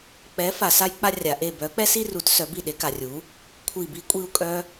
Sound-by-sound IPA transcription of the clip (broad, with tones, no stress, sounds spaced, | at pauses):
k͡p ɛ˨˥ f a˨ s a˥ j k͡p a˥ rʲ a˨ ʔ e˦˨ b œ˨˥ k͡p ɛ˥ s i˥ r u˨˥ t s œ˨˥ b i˦˨ ɗ e˨˥ k a˨ rʲ u˨˥ | kʷʰ i˦˨ b i˥ kʷʼ i˥ u̯ kʼ œ˥